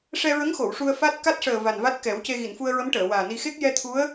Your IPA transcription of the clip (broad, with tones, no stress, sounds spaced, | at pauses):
ʂ ɛ˧ ɹ ə˧˥ ŋ x o˨˩˨ w ʂ u˧ ə̯ f a˦˥ t̚ k a˦˥ t̚ ʂ əː˨˩ v a˨˩ n v a˦˥ t̚ k ɛ˨˩˦ w c e˧ ɣ i˨˩˨ n f u˧ ə̯ ɹ ə˧˥ m ʈ əː˨˩˨ w aː˨˩ n i˧ x e˦˥ k̚ j ɛ˧ t̪ʰ u˧˥ ə̯